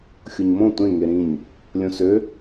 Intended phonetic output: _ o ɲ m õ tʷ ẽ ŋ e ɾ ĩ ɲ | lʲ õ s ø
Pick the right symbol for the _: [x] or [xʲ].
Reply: xʲ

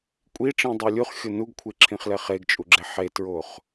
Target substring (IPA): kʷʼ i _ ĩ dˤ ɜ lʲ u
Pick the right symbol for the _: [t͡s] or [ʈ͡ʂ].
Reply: ʈ͡ʂ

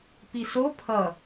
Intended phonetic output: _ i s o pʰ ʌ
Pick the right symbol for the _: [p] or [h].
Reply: p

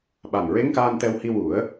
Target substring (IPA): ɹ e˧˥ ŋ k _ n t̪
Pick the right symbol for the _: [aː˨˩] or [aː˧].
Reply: aː˧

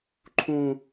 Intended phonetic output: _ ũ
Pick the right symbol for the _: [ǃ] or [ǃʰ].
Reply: ǃʰ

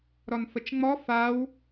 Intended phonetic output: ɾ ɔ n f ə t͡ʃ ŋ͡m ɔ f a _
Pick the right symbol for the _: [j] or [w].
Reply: w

